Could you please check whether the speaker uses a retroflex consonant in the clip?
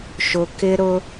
no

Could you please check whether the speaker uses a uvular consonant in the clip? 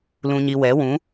no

